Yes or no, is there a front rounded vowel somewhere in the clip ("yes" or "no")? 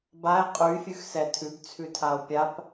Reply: yes